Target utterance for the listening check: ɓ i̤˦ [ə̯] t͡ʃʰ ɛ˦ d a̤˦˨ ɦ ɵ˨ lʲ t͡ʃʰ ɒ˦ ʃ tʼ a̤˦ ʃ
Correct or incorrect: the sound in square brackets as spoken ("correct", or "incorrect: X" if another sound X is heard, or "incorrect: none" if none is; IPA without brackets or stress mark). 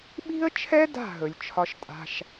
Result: correct